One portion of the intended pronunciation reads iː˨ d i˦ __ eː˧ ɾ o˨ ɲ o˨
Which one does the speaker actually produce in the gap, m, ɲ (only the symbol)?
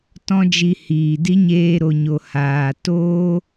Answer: ɲ